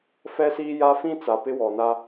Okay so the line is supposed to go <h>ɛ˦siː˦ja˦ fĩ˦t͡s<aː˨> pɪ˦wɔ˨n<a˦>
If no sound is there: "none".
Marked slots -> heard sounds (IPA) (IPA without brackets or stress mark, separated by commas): f, a˨, a˦